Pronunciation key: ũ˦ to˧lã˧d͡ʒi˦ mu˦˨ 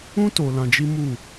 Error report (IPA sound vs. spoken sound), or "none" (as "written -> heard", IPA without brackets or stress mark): none